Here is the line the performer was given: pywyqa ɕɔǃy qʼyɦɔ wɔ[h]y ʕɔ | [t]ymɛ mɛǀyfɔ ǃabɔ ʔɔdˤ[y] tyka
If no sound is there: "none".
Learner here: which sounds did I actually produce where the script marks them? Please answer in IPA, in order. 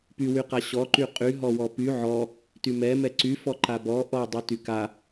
p, t, y

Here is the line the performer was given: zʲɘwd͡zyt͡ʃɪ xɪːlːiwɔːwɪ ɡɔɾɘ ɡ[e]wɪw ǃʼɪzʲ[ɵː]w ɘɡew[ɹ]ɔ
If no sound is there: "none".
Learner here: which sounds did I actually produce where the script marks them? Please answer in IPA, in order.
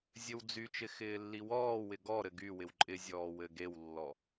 y, ɔː, lː

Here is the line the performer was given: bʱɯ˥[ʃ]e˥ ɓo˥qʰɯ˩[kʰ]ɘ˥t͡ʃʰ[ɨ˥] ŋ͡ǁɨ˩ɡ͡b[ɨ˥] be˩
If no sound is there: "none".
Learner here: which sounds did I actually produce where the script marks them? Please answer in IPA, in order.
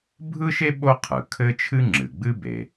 ʃ, kʰ, ɨ˥, ɨ˥

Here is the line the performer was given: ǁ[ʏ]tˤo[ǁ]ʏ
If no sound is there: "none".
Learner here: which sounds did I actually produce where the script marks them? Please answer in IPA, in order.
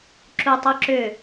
u, ǁ

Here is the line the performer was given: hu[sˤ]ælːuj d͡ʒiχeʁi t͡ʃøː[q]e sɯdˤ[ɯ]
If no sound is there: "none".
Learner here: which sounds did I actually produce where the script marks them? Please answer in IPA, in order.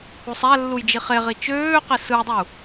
sˤ, q, u

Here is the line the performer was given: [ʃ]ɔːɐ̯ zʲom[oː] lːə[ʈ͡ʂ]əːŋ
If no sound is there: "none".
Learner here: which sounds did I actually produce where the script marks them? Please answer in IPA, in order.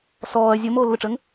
s, oː, ʈ͡ʂ

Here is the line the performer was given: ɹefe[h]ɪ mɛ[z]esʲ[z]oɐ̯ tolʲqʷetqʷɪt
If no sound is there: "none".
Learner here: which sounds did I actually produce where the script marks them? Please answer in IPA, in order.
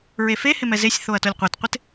h, z, θ

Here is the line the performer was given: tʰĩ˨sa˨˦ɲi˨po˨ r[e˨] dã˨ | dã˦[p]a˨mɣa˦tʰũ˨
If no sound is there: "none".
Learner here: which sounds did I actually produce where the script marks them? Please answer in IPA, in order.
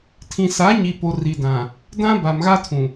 i˨, b

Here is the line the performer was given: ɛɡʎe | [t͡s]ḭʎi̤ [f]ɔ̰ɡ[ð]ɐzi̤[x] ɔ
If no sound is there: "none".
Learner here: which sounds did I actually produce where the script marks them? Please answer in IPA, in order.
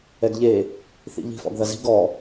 θ, f, ð, ɡ

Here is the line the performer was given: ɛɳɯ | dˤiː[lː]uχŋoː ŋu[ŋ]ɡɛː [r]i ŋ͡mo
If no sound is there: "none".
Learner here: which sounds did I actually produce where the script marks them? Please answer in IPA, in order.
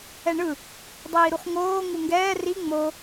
ɾ, ŋ, r

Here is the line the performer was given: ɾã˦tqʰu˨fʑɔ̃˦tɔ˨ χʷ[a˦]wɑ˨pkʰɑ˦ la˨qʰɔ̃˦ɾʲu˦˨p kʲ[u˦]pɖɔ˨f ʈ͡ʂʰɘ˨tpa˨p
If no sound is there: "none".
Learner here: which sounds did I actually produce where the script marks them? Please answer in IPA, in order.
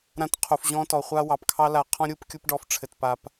a˦, u˦

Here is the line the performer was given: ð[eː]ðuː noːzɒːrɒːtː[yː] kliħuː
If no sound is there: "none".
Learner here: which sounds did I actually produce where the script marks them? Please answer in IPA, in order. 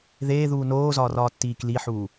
eː, iː

